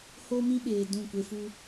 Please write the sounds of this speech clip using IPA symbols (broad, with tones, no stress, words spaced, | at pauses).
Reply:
ho˦mĩ˦ɓeː˨ dũ˦˨ kʷe˧fu˦